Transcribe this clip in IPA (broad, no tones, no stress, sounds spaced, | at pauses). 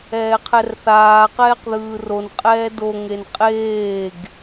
ɛː qʰ ɛ r θ aː q ɛː q ð ɯː r o n qʼ ɛː d o ŋ e n qʼ eː ɡ